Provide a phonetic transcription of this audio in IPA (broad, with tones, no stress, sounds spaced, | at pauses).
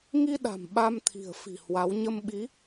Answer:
ŋ i˧ ɗ a̤˨˩ m ɓ a˧ m t̪ʰ i̤˨˩ ə̯ f i̤˨˩ h w a˨˦ w ɲ ə˧ m ɓ i˨˦